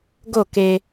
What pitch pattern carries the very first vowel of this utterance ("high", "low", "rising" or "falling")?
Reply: falling